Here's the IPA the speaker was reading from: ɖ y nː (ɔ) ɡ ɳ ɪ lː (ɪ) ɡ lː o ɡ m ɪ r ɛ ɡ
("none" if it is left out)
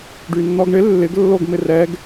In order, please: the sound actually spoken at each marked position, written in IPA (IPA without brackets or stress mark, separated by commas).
ɔ, ɪ